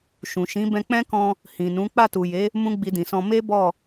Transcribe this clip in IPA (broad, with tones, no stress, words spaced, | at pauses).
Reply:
ʃũ˨ʃĩ˨˦ bɛ̃˧k͡pɛ̃˦kɔ̃˧ | hĩ˨nũ˨˦ k͡pa˦˨tu˨je˨˦ | mũ˦ɡ͡bi˧dĩ˨sɔ̃˧ me˦ bɔ˦˨